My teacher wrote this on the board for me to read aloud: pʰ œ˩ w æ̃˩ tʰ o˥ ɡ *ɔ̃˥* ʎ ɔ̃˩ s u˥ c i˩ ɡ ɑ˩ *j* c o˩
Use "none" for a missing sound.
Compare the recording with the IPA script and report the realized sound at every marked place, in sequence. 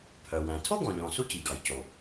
ɔ̃˩, j

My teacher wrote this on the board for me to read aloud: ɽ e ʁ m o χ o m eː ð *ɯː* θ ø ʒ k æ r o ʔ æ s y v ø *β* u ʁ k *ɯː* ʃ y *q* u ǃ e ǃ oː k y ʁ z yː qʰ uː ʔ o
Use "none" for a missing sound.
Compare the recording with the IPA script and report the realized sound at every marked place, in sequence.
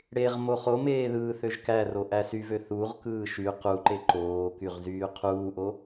ɯː, θ, ɯː, q

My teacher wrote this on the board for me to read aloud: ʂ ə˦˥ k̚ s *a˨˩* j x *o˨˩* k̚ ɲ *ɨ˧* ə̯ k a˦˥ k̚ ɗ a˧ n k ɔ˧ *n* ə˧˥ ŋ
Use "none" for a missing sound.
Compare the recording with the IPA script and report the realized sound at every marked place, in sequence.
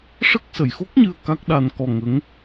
ə˨˩, o˦˥, ɨ˧, ŋ

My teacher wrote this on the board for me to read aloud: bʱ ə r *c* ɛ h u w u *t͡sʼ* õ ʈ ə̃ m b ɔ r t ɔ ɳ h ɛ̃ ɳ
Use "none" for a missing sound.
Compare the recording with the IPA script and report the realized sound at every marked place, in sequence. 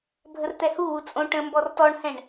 t̪, t͡sʼ

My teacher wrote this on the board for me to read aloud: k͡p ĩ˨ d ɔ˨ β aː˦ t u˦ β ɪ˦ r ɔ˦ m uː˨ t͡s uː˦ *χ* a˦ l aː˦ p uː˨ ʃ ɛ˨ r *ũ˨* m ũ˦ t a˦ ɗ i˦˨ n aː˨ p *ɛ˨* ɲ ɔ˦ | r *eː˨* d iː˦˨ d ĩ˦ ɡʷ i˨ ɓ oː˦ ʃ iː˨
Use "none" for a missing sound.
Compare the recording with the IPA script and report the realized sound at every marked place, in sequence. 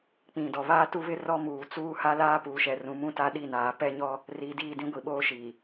h, ũ˨, ɛ˦, iː˨

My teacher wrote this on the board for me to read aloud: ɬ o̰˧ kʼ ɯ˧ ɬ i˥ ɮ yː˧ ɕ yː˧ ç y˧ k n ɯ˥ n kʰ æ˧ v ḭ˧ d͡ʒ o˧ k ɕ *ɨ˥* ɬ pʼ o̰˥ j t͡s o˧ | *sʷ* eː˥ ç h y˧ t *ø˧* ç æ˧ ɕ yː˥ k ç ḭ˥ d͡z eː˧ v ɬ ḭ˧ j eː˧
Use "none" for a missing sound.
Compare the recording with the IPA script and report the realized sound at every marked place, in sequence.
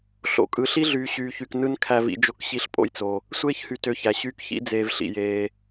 i˥, sʷ, ø˧

